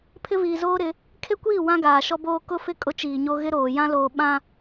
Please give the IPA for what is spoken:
pʰ ɪ˦ v iː˨ z oː˦ ɾ ɪ˨˦ | kʰ e˦ kʷ iː˦˨ w ã˦ ɡ aː˨ ʃ ɔ˦ b oː˦ k ʊ˦ f ɪ˦ kʼ ʊ˦ t͡ʃ iː˨ ɲ o˦ ɣ ɪ˦ ɾ oː˨ j ã˦ l oː˨ ɓ ã˦

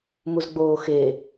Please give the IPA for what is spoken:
m u z ɡ͡b oː x e

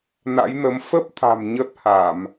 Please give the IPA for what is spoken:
n a̰˧˥ j n ə˨˦ m f ə˦˥ p̚ t̪ʰ a̤˨˩ m ɲ ə˦˥ t̚ h a˧˩˨ m

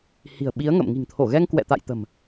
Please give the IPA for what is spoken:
h i̤˨˩ ə̯ ɓ i˨˦ ə̯ ŋ ə̰˧˨ m ŋ i̤˨˩ ŋ t̪ʰ o˧˩ ɣ ɛ˧ ŋ k w ɛ̰˧˨ t̪ a̰˧˨ j t̪ ə̤˨˩ m

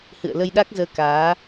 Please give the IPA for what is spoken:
h ɨ̰˧˨ ə̯ l ə˧ j ɗ a˦˥ k̚ z əː˧ k aː˨˦

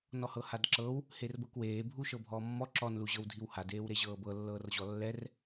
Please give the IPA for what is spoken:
n ɔ h ɤ h a d ǁ ɤ w | h e r b ɤ k w eː bʱ u ʃ ɤ bʱ ɔː mː ɔ ǁ ɔ n l u ʑ ɤ w dʱ i w h a d eː w ɾ e ʑ ɤː b ɤ lː ɤː r ʑ ɔ lː ɛ r

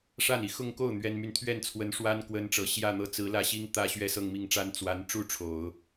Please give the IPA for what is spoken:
ʂ a˥˩ n i˨˩ x ʊ˥˧ ŋ k o˥˩ ʊ̯ n̪ ɥ ɛ˥ n m y˥˧ n t̪ʰ ɥ ɛ˥˩ n t͡sʰ w ə˧˥ n ʂ w a˥ n k w ə˥ n ʈ͡ʂ ɤ˨˩ ɕ j ä˥˧ n̪ ɤ˥˩ t͡s ɹ̩˧˥ l ä˥˩ ɕ i˥ ŋ t̪ ä˥˧ ɕ ɥ ɛ˥˧ s ɤ˥˧ ŋ m i˥˩ ŋ ʈ͡ʂ a˥ n t͡s w a˧˥ n ʈ͡ʂ u˥˩ ʈ͡ʂʰ o˨˩˦ ʊ̯

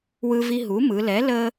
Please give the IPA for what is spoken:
w ɯ˧ v i˧ ɦ u˩˥ m ɯ˩˧ l ɛ˩˥ l ə˧

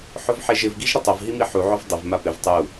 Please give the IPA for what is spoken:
ħ ʊ v ħ e ʒ ɪ v ɡ i ʒ ɾ ɪ tˤ ʊ v ɦ i m i ħ u ʕ ʊ v dˤ ɪ v m a p ɪ v tˤ u

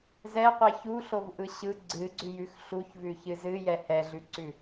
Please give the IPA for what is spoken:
z ɛ qʷ ɛ ç u ɬ o v ʔ ɯ ɕ ɯ ɡ͡ǀ ɨ ɡ͡ǀ ʉ j ʉ x ɬ u ç v ʉ ç ɨ z ɨ j ɛ h ɛ ɮ ʉ ǀ ʉ

